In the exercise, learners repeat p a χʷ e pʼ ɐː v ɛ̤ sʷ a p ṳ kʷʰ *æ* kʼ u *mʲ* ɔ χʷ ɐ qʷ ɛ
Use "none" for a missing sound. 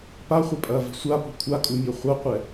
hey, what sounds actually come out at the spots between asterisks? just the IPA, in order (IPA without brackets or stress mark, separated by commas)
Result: a, mʲ